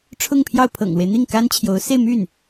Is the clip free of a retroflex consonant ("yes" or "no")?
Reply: no